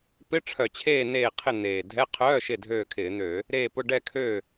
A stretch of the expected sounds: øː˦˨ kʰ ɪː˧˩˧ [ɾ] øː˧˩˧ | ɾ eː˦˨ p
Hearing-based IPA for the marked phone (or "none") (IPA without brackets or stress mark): n̪